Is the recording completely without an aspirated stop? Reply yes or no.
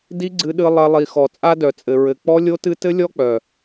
yes